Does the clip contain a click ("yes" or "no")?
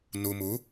no